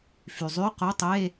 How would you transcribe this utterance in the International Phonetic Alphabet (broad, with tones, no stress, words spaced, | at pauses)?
fy˩zˤy˧˥˧qo˧˥˧ tˤe˧˥˧